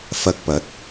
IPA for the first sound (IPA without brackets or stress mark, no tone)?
f